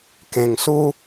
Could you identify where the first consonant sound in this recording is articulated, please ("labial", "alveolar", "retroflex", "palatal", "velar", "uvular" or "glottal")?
velar